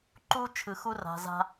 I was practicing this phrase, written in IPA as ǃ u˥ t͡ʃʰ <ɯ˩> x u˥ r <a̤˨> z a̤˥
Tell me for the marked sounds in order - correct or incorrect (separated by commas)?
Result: incorrect, correct